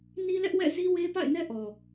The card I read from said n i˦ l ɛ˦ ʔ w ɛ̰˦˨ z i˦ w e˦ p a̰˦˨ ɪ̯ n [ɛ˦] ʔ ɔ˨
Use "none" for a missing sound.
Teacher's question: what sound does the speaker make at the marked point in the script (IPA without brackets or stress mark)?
ɛ˦